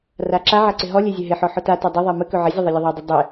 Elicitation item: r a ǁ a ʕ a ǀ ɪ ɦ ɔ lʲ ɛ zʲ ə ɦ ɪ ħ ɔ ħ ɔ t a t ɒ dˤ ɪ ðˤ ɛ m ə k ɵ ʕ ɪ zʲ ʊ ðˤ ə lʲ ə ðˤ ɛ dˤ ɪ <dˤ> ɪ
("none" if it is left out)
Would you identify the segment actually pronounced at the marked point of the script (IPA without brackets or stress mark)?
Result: dˤ